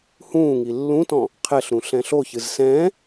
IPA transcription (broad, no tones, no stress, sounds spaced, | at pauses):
h ũː ŋ i lː ũ t ɔ̃ | qʰ ɛ ɬ ɾ ũ ɬ ɛ̃ ɬ o ç ɨ z s ɛ̃ː